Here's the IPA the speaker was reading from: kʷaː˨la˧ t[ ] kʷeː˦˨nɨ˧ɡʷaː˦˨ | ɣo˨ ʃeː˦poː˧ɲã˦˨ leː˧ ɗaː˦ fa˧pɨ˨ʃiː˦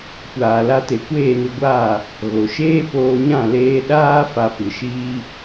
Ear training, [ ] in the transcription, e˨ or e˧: e˨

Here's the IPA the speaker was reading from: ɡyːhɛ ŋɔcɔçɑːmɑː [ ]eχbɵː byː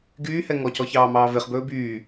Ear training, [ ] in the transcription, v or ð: v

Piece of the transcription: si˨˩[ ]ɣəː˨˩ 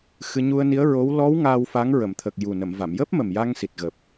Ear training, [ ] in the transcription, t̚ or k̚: t̚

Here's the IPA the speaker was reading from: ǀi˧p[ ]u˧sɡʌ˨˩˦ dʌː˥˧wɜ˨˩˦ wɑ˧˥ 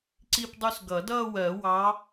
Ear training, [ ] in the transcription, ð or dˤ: dˤ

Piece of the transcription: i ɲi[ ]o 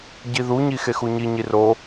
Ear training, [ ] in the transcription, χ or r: r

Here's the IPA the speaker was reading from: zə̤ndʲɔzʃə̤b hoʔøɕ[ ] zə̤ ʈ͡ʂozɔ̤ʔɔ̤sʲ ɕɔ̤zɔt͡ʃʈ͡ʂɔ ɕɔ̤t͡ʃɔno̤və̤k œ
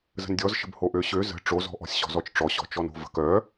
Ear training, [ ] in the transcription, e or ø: ø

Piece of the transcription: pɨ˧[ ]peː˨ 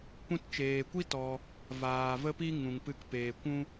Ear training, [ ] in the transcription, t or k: k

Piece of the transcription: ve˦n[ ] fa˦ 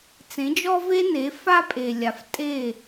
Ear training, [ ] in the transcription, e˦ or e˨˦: e˨˦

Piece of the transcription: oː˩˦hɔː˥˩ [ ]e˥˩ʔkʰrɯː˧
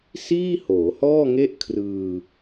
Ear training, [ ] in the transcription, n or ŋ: ŋ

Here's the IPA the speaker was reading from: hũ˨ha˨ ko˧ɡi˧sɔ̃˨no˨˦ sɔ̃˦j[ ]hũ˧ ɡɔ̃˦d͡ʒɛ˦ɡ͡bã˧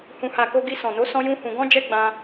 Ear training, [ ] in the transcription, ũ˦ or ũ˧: ũ˦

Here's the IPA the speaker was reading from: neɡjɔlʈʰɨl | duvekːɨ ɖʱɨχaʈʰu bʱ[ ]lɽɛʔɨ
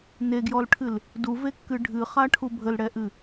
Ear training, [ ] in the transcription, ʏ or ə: ə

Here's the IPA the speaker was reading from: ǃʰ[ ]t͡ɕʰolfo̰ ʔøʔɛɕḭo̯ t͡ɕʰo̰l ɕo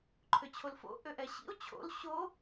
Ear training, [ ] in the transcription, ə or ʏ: ʏ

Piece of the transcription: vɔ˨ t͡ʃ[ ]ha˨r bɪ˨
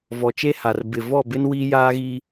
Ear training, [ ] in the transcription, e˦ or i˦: e˦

